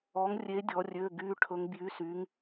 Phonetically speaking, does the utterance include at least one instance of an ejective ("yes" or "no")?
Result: no